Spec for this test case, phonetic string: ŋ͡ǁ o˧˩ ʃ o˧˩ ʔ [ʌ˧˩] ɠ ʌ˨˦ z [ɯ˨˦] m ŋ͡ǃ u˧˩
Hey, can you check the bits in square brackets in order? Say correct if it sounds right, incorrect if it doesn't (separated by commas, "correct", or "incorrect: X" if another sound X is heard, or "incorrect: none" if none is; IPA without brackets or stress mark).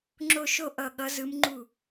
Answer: correct, correct